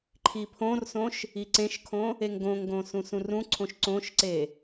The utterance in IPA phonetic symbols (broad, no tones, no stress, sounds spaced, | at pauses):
ǃʰ i pʰ õ r s õ ʃ | i ǀ ẽ ʃ kʰ õ | e ŋ ɡ õ ŋ ɡ õ s ũ s ũ r ũ ǀʰ õ ʃ ǀ õ ʃ ǀ e